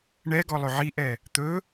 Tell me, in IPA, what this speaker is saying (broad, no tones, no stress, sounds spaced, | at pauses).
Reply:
ɳ ɛ ɡ ɔ lˠ ɵ ʕ i ʔ ɛ | t̪ ɵ